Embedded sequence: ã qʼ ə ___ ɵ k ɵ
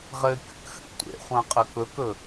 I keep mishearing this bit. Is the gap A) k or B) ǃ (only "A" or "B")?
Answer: A